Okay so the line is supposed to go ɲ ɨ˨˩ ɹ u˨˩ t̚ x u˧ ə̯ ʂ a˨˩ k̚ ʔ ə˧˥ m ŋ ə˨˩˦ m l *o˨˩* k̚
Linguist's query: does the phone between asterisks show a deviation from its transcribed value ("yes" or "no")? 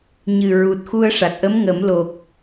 no